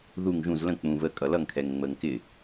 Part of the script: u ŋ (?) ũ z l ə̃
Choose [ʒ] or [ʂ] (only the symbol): ʒ